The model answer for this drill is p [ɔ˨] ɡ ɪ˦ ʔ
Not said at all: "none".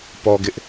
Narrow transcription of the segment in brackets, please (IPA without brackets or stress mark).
ɔ˨